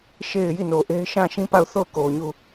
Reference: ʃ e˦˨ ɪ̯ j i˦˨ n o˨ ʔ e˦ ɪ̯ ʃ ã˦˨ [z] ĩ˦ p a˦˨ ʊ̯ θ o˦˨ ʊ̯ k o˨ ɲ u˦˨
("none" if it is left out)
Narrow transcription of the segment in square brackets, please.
ʃ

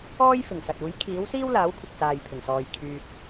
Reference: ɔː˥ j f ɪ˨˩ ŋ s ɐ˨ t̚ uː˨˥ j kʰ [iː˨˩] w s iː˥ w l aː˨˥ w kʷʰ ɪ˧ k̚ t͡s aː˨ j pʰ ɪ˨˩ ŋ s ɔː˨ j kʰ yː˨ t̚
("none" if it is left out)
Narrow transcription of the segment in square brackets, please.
iː˨˥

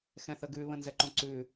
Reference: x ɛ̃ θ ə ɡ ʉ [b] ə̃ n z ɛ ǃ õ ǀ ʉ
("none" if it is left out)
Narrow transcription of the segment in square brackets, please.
β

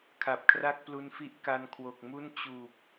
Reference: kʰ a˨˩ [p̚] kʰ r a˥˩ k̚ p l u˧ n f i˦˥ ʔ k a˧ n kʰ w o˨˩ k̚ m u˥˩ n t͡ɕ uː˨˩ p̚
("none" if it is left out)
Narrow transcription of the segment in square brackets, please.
p̚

